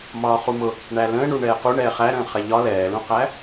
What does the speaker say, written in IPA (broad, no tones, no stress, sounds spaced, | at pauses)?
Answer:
m ɒː χ u m ʊ | ɳ æ l ə̃ː ɳ u ɳ ɛː q u ɳ ɛː χ æ ɾ ə̃ː χ ɛ ʎ ɒ l ɛː l ũ q æ